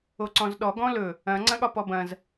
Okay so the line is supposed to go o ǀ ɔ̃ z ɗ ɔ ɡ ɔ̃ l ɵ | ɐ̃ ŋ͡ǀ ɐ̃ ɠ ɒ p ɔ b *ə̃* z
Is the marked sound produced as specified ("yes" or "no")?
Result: no